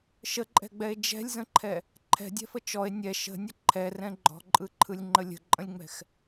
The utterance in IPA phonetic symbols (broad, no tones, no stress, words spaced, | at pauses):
ʃəǃʼɛ̤ɡ͡bɛe̯ d͡ʒɛ̤lʲzə̃ǃʰɛ | ǃʰɛ̤dʲɛ̤fə t͡ʃɔe̯ nʲɛ ʃə̤nʲə ǃʰɛrɛ̃ ɡ͡ǃɔ̤ǃʼɯǃʰɯlʲŋ͡ǃə lʲə̤ǃʼə̃lʲŋ͡mɛ̤x